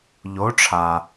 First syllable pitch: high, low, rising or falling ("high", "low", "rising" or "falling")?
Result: rising